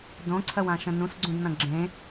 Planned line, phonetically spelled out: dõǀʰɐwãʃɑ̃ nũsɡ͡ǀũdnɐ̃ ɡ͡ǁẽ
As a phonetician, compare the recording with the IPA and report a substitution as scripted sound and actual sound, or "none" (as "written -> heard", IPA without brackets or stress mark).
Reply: ɑ̃ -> ə̃